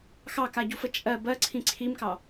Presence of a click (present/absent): present